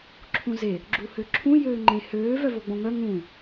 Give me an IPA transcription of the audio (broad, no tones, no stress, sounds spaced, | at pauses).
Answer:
ǁʰ ũ z e | ɡ͡ǁ u h ø ǁʰ ũ j øː ŋ͡ǃ ẽ h øː v œ v o ɡ͡b õ ŋ œ ŋ ũ